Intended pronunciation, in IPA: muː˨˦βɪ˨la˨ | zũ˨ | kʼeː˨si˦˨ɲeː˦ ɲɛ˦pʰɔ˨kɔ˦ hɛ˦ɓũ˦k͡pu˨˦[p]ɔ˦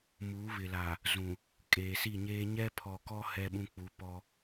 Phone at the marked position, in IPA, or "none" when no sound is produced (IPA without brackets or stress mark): p